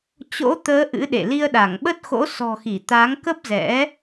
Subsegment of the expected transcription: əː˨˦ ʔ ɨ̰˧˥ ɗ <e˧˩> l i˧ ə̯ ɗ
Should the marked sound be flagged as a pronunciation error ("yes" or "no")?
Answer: yes